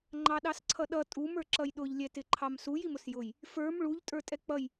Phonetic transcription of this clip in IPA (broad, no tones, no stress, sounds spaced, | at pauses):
ŋ͡ǃ ɑ ɗ ɑ s ǀʰ ʌ ɗ ʌ tʼ u m ə˞ ǁ ʌ j ɗ ʊ ʎ lʲ ɛ t ɪ ǃʰ ɑ m s u j i m ʊ s j ʊ j | f ə˞ m ɭ u ʎ tʼ ə˞ tʼ ɛ k͡p ʌ j